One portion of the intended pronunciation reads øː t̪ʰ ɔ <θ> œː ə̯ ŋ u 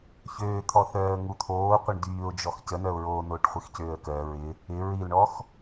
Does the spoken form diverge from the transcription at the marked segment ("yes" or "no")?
no